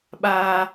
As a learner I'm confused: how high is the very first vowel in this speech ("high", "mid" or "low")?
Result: low